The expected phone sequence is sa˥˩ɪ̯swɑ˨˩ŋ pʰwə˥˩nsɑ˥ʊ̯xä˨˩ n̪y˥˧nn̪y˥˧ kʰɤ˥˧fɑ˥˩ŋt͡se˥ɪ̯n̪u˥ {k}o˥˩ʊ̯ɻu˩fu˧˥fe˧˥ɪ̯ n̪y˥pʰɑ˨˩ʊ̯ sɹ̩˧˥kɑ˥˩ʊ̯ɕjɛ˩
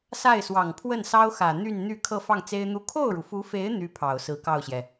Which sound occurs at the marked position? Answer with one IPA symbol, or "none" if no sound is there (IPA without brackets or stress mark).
kʰ